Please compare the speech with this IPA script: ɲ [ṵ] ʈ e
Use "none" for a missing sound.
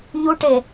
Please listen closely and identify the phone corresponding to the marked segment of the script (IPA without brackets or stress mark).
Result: u